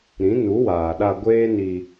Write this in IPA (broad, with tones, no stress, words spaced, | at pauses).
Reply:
ɾĩ˨˦nu˨˦waː˨ɗa˧ ɡʷeː˦ni˧